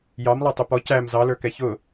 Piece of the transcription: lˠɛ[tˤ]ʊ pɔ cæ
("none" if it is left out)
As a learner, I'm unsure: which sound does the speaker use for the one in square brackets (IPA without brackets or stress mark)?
tˤ